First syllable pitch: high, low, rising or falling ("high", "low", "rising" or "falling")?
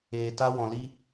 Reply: low